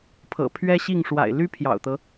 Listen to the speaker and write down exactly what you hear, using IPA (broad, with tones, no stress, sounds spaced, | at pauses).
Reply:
pʰ ɤ̰˨˩ pʰ ɥ ɛ˥ ɕ i˥˩ ŋ ʂ w a̰˨˩ ɪ̯ l y˥ pʰ j ɑ̰˨˩ ʊ̯ t̪ ɤ˦